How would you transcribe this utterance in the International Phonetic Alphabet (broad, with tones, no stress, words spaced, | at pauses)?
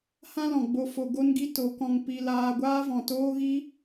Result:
hã˦lɔ̃˨ɡ͡bo˧ fo˧ ɡo˦nɡi˦ to˨˦kɔ̃˧ŋ pi˧ laː˧ ɡʷaː˦vɔ̃˨toː˦ɣi˦